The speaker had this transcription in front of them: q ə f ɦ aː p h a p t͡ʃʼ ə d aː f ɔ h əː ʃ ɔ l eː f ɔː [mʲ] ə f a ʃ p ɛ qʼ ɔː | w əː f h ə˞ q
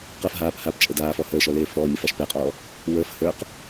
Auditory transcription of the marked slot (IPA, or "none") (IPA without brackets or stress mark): mʲ